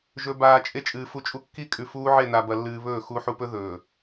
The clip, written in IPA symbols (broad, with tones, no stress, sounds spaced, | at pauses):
ʒ ɵ˨ b aː˨ t͡ʃʼ e˦ t͡ʃʼ ɨː˨ f u˦ t͡ʃʼ u˦ kː i˦ kʼ ʉ˨ f uː˦ ʕ e˦˨ n a˨ b ɐ˨ lː ɨː˨ β ɵː˦˨ x u˨˦ ħ u˨ p ɵ˦ ð ɵː˨